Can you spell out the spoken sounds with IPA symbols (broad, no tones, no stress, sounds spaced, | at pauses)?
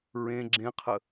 ɹ ẽ ɡ͡ǁ ẽ qʰ ə